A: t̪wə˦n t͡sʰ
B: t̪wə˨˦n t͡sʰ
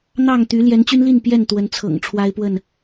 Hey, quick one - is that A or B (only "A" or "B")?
B